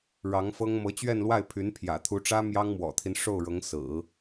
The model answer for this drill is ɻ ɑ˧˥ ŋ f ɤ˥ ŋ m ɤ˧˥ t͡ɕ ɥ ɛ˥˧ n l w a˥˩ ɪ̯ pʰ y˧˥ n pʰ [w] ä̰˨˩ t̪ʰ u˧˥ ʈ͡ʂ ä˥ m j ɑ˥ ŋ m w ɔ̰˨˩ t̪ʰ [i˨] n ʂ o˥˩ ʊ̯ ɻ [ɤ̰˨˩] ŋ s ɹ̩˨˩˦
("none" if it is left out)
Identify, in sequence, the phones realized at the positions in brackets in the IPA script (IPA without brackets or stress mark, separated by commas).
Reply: j, i˦, ɤ˧˥